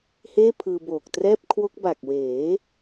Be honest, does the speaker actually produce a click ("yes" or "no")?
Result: no